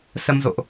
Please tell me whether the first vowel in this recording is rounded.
no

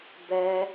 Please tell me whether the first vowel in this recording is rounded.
no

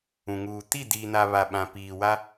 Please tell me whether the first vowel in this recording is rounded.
yes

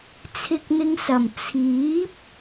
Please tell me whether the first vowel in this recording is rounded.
no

